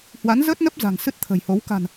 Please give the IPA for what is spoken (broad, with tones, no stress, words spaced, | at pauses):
hwa˨˦n zəː˦˥t̚nə˦˥p̚ za̤˨˩ŋsɨ˦˥t̚ t̪ʰə̤˨˩jho˨˦w ka̤˨˩n